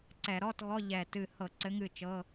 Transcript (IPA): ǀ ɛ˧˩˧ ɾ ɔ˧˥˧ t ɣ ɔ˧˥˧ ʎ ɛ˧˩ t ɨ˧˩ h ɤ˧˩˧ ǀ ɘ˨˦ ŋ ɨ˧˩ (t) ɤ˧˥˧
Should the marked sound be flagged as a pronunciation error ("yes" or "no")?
yes